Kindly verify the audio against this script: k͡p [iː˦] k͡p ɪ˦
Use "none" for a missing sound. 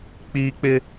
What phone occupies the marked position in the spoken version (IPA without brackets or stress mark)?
iː˦